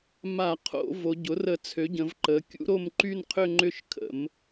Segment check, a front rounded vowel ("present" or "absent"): present